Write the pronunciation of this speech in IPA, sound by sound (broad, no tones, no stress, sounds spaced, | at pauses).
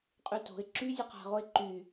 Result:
qʼ y t o̤ ɪ̯ ǁ y zʲ ɯ q a̤ ʁ o ɪ̯ ǃ y